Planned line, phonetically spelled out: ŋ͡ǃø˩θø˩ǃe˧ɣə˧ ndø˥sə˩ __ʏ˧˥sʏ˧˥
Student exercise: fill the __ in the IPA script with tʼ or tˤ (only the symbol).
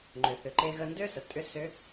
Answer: tʼ